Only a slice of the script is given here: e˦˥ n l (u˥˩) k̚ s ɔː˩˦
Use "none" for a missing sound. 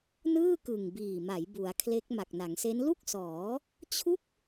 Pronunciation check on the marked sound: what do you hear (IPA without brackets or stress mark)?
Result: u˥˩